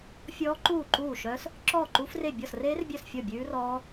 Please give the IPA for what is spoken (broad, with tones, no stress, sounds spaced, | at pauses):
fʲ ɔː˦˥ ǃ uː˥˩ ǃ uː˥˩ ʃ œ˦˥ s | ǁ ɔː˥˩ ǃ uː˦˥ f r e˥˩ bʲ ɔ˥˩ s r eː˦˥ r bʲ œ˥˩ s fʲ ɔ˥˩ bʲ ʉː˦˥ r ɔː˦˥